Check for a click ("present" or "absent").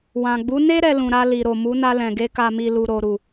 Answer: absent